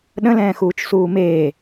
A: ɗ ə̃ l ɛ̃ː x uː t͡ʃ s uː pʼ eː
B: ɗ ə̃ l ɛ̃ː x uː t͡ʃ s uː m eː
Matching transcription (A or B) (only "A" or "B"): B